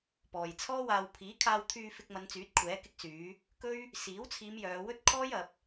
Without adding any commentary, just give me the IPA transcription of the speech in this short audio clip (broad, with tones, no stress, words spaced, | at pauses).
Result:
pɔː˨jt͡sʰɔː˥waː˧w pʰiː˨˥kʰaː˧wt̪ʰyː˧ fɪ˧k̚mɐ˨˧nt͡syː˨˥t̚ kʷʰɛː˨˥kɪ˧k̚syː˨˧ | kɵ˥ɥ | siː˨˥wt͡sʰiː˨˧m jœː˨˧wɵ˥t̚kʰɔː˥j ɐ˨˥p̚